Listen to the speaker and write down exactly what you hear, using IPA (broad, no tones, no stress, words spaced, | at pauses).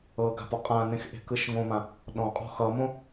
ɤ ɡa̤pɔqʼãnẽx ʔe̤kɯʃŋõmã | ɗɔ̃qʼɔ̤ xʌmõ